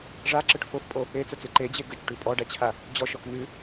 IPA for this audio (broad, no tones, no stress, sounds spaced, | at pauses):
ʐ a ǁ ə ʈ f o f pʼ o | e t͡s ə t͡s e ǃ e d͡ʑ e ɡ ə t͡ʃ ʈ ʉ pʼ ɔ ɖ a t͡ɕʰ a | d͡ʑ ɔ ʃ ɔ k n̪ ʉ